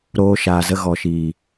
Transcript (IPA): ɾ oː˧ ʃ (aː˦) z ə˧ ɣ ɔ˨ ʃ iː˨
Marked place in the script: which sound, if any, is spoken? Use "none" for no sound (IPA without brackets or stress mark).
aː˨